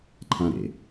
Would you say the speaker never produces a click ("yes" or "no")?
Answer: no